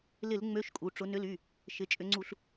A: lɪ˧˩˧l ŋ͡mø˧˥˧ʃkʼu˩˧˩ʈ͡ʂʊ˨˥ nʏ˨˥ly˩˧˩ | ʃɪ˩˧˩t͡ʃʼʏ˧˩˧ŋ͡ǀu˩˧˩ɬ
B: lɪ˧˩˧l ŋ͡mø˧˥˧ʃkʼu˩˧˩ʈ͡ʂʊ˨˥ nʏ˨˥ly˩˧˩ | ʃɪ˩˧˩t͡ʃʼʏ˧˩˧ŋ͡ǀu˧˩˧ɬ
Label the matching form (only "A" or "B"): B